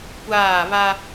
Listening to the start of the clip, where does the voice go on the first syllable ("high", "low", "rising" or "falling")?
falling